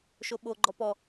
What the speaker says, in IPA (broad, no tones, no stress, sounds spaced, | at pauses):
ʃ o ɓ o ɡ͡ǃ ɔ p ɔ